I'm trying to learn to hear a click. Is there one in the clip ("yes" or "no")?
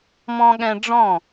no